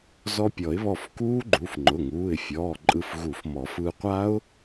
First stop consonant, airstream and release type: plain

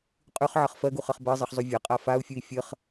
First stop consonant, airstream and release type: ejective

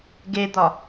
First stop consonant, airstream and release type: plain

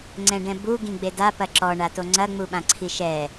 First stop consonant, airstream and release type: click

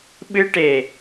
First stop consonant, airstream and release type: implosive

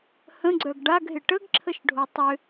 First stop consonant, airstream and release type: click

